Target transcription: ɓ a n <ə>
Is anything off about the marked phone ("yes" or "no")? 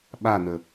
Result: no